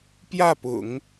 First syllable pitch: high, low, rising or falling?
falling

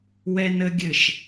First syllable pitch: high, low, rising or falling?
high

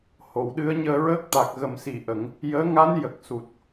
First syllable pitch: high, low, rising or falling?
low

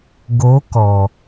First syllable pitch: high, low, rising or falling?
rising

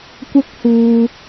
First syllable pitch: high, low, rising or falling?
high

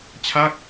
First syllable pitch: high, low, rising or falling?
falling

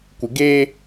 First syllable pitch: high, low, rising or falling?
low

